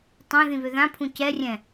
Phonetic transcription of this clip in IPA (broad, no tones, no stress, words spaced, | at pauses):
tˤœ̃ ðĩβøðãpʰũ cɛrʲɛ̃